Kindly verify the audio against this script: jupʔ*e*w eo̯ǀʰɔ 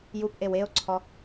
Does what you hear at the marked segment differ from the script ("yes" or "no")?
no